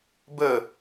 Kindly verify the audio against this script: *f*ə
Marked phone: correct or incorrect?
incorrect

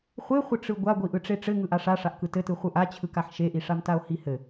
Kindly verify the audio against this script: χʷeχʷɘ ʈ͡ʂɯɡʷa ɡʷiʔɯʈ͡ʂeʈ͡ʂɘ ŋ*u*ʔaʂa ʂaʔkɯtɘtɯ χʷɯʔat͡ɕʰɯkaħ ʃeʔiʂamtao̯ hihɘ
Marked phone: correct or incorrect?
incorrect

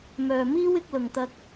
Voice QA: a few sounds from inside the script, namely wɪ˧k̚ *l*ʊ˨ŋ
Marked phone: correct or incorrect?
correct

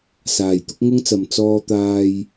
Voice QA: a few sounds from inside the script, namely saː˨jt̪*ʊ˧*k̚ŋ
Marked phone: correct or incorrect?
incorrect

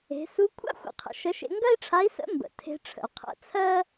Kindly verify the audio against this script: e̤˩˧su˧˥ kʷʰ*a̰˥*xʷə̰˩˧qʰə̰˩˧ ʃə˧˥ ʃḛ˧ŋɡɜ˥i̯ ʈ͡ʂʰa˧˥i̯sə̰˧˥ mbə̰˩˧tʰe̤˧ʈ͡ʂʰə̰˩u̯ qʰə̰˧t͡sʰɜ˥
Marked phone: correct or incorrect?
correct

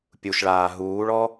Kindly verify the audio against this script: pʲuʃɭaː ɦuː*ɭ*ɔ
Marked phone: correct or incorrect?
correct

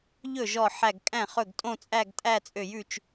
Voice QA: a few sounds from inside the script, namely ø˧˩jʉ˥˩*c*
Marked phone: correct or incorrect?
incorrect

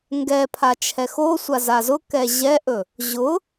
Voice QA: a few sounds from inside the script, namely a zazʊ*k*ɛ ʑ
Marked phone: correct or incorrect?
correct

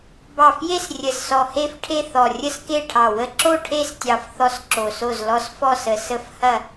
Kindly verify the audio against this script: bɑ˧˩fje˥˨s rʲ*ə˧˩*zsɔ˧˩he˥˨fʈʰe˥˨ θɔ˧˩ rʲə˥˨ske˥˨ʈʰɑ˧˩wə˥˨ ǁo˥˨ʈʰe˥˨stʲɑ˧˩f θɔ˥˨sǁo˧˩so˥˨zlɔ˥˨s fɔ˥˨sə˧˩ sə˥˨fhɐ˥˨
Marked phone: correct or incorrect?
correct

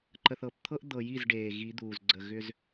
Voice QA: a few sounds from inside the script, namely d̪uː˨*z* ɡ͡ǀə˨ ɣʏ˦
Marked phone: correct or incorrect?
correct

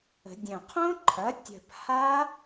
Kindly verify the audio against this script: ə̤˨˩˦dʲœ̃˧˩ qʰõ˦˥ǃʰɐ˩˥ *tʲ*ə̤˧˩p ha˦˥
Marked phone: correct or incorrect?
correct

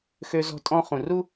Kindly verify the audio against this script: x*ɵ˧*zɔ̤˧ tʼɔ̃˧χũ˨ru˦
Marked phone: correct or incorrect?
incorrect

